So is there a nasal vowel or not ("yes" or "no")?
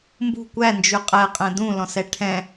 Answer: yes